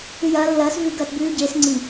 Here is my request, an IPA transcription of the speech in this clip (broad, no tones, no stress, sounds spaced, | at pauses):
ʉ j ɐː lː ɐː s v ʉ ɡ ɐː t b ʉː ɟ eː s ŋ͡ǀ i